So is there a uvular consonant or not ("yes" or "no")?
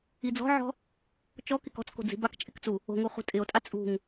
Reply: yes